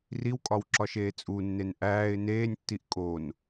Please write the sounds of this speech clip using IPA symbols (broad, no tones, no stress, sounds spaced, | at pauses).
r i w kʼ ɒ w ǁ ɒ ʃ eː t͡sʼ u nː e n ʔ æː ɪ̯ n eː nʲ tː i ʔ kʼ o n